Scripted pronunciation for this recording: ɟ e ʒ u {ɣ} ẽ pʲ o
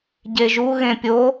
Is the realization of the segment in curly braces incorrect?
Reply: no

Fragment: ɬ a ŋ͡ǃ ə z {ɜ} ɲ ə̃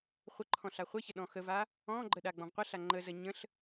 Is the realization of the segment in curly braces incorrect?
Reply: no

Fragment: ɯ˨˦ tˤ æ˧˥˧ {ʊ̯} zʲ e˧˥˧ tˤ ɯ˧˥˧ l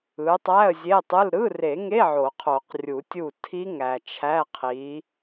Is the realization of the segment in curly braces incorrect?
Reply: yes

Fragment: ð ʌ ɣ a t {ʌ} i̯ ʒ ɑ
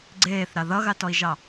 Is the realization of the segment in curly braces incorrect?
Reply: yes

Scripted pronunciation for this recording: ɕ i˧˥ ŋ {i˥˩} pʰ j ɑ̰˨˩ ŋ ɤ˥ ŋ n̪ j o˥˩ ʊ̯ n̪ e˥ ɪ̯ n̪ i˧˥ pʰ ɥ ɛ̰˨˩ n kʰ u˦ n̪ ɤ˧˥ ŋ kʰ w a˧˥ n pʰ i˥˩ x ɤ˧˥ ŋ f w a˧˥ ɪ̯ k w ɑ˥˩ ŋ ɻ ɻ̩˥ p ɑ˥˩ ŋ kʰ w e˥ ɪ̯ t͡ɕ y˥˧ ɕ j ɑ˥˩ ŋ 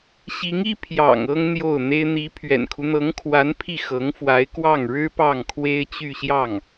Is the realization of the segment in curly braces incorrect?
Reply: yes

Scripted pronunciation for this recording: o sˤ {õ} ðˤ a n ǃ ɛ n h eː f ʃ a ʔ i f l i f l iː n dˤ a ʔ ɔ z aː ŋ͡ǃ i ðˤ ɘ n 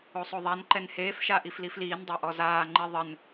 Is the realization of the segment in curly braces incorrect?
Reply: yes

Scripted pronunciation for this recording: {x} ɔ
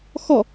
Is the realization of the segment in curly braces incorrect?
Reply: no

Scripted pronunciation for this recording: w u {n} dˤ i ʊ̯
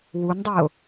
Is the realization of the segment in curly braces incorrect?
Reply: no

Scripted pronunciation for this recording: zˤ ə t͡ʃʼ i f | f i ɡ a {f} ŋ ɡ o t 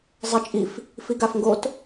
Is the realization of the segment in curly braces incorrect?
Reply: no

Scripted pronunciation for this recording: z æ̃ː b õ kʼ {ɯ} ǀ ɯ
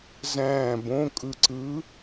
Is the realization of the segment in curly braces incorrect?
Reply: no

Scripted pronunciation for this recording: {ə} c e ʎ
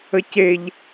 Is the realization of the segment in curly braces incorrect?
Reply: no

